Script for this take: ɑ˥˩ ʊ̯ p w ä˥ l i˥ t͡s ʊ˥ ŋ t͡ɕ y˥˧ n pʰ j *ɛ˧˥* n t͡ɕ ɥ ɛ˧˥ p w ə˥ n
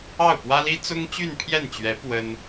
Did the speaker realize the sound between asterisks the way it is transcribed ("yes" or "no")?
no